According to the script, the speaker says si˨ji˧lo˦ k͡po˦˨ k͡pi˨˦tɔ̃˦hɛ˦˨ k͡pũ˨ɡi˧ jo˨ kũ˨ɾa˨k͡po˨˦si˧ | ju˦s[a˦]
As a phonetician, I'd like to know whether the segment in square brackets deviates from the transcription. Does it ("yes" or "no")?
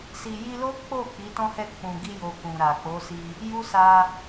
yes